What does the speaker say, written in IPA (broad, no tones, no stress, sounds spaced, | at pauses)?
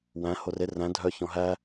w æ̃ h o r e r æ̃ dʱ œ ç ɔ̃ ɦ æ